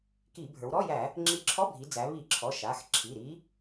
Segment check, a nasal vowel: absent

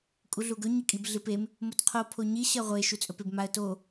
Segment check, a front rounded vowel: absent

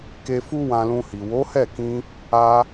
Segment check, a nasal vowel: present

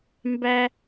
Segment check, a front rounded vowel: absent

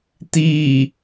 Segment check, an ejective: absent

